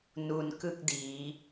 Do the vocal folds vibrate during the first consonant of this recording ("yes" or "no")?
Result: yes